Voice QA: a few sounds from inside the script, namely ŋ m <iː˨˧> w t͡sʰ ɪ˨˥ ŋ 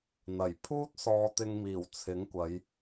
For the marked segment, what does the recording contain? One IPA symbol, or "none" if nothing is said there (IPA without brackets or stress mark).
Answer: iː˨˩